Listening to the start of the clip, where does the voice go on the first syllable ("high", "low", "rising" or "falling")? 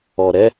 low